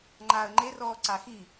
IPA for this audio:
ŋ͡ǃ aː ə̯ ŋ͡ǃ e r ɔː ǀ a x i

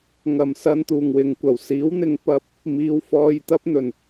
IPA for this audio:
ŋ ɐ˨˩ m s ɐ˧ n t̪ uː˨˩ ŋ w ɪ˨˩ ŋ kʷ ɐ˨˩ w s iː˨˥ w n̪ ɪ˨˧ ŋ p ɐ˧ p̚ | m iː˨˧ w f ɔː˧ j t̪ ɐ˥ p̚ n̪ ɵ˨˩ n

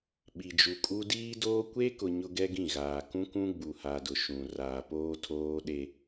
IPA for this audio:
ɓ i˨ d͡ʒ u˨ kʼ u˦ d iː˦ d oː˦ kʷ e˦ k ʊ˨ ɲ ʊ˦ ɡ ɛ˦ ɡ ĩ˦˨ ɣ aː˨ k ũ˦ k ũ˦ ɡ͡b u˨ h a˨ d ʊ˨ ʃ ũ˨ r aː˨ p oː˦ tʰ oː˦ ɗ e˦

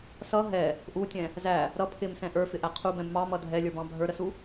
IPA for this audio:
s ʌ ɦ ɛ | ʔ u tʲ ɛ̃ | z æ | ɾ ʌ pʰ ɪ m s ɛ̃ ʔ ə˞ f ɪ ʔ æ qʰ u b ɛ̃ b m ɑ m ʌ dʱ ɛ lʲ ə˞ b ɑ̃ bʱ ə˞ ɾ ə s u

